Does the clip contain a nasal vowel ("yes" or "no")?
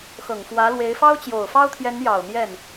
no